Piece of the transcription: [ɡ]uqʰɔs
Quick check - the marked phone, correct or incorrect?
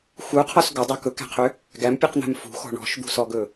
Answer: incorrect